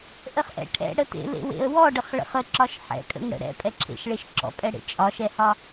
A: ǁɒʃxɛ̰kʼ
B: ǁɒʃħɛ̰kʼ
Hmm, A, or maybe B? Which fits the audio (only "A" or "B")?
B